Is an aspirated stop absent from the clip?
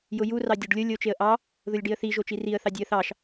yes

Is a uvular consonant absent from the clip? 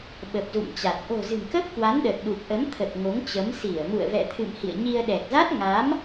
yes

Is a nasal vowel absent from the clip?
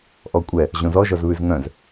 no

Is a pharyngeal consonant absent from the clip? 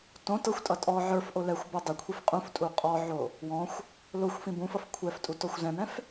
no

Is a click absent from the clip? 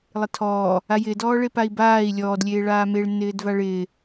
yes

